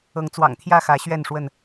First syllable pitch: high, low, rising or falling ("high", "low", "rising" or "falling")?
rising